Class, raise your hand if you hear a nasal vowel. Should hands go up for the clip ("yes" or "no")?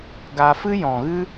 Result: yes